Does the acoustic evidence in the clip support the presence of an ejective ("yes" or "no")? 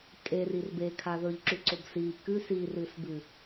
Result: yes